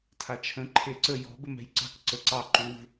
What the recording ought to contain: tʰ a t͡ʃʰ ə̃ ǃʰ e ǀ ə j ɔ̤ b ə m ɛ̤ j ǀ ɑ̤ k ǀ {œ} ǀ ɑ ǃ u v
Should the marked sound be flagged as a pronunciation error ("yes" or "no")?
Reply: yes